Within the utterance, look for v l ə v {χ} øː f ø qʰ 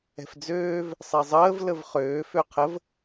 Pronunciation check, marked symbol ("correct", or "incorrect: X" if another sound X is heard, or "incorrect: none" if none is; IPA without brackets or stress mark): correct